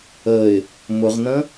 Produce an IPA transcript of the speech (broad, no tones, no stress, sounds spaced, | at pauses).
ə ɪ̯ | m ʊ ʁ n ə̃